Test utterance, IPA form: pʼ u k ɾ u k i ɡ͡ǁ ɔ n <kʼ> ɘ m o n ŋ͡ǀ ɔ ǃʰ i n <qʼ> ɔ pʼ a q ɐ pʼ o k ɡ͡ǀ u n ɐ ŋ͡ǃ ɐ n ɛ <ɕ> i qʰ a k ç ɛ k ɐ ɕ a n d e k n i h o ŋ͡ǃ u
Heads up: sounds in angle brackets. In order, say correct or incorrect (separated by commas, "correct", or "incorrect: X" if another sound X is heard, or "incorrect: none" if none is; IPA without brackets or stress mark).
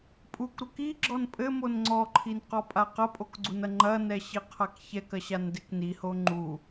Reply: incorrect: pʼ, incorrect: q, correct